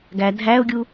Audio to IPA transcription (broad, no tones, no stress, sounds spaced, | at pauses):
ɡ æ dʱ æ ʊ̯ ɡʲ u